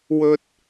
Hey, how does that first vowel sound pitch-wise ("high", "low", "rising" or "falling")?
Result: high